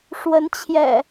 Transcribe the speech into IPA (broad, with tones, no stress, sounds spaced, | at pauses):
ʂ w ə˨˦ n t͡ɕʰ j ɛ̰˨˩